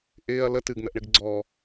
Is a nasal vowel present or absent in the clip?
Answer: absent